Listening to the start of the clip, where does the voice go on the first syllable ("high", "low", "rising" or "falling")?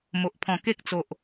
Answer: low